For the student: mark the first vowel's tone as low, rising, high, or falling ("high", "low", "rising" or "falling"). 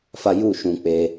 high